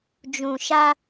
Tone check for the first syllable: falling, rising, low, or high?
low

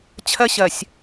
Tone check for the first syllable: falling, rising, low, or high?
high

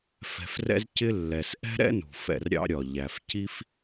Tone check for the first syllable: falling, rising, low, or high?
low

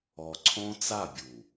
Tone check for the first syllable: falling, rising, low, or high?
low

